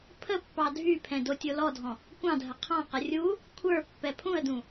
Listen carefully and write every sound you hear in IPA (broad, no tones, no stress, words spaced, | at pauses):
pʰə pːɑdʱypʰɛ̃ dotʲolɔdʱɔ̃ | kʷɑ̃dʱə qʰɑ̃qə rʲu | kʷʰə˞ pːɛpʰũə̯dũ